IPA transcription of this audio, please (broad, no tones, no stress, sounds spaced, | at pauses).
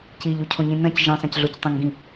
c i ʎ u cʰ õ ɲ ĩ n ɐ̃ c ʒ ĩ sˤ ɐ̃ c ɮ o c tˤ ɐ̃ ŋ ɡ ĩ